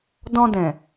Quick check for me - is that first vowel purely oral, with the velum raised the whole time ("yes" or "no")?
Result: no